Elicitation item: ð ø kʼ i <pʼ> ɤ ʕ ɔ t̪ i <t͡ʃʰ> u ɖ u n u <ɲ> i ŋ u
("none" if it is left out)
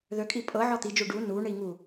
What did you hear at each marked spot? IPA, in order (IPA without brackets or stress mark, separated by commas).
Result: pʼ, d͡ʒ, ɳ